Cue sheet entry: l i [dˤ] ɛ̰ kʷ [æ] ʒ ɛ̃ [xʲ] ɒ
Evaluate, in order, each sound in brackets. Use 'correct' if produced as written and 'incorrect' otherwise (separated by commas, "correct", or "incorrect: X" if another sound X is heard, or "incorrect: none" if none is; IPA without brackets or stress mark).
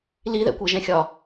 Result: incorrect: ð, incorrect: ɜ, correct